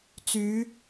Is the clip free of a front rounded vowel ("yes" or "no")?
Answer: no